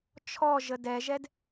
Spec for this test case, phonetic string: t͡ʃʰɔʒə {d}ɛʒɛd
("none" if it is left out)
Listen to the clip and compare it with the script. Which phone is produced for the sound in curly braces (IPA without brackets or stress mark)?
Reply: d